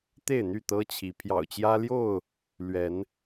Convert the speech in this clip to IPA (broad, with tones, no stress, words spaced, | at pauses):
t̪e˥˨ɪ̯n̪y˥˨t̪ɤ˦t͡ɕʰi˨˦ pʰjɑ̰˨˩ʊ̯t͡ɕjä˦ljo˥˨ʊ̯ | lɥɛ˨˦n